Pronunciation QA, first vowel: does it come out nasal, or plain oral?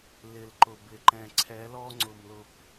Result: oral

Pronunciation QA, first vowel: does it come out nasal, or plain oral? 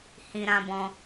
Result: nasal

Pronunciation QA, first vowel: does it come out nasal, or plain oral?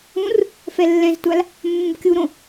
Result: nasal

